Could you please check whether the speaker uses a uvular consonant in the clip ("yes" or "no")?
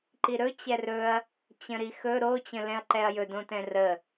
no